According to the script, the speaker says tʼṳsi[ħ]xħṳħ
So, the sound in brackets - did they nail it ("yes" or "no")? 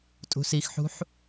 no